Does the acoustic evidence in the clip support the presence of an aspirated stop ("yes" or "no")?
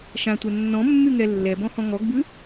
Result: no